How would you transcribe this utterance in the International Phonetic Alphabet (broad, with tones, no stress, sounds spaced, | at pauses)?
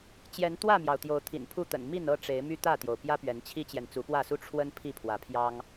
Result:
t͡ɕ j ɛ˨˦ n t̪ w ä˥˨ m j ɑ˩ ʊ̯ t̪ j o˨˦ ʊ̯ t̪ʰ ḭ˨˩ n pʰ u˥˨ t̪ ə̰˨˩ n m i˥˨ n ɤ˥˨ ʈ͡ʂ e˨˦ ɪ̯ m y˦ t̪ ä˥˨ t̪ j o˩ ʊ̯ p j ä˦ p ɥ ɛ˨˦ n t͡ɕʰ i˦ t͡ɕ j ɛ˨ n t͡s u˨˦ p w ä˥˨ s u˥˨ ʈ͡ʂʰ w ə˦ n pʰ i˥˨ pʰ w ä˨˦ pʰ j ɑ˦ ŋ